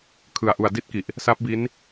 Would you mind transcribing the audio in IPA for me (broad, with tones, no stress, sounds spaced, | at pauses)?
kʰ ɯ˨˩ a̯ ʔ u˨˩ a̯ d i˥˩ t̚ k i˨˩ ʔ | s a˦˥ p̚ b i˦˥ n